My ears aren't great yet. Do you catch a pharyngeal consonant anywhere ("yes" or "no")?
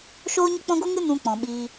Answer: no